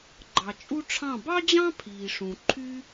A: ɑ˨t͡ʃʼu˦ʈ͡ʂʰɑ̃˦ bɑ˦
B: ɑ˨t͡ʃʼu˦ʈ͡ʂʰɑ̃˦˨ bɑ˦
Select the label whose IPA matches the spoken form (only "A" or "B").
B